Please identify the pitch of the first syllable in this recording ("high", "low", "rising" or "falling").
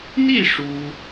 falling